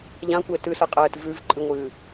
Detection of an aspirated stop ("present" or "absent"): absent